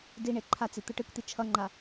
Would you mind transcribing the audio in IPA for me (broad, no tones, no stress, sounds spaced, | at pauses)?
d i ɳ e ǃʰ a t͡s i t̪ ɯ ʈ ɯ k t̪ i t͡ʃʰ ʌ ŋ͡ǃ a